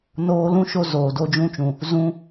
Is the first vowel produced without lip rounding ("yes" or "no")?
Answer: no